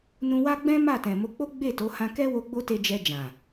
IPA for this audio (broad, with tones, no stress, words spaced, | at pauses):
nũ˧ wa˦ɡ͡bɛ̃˦ ma˦˨tɛ̃˨ mo˨˦k͡po˦ɡ͡be˦˨to˨˦ hã˧kɛ˦wo˧ɡ͡bo˦ te˧d͡ʒɛ˧ d͡ʒã˨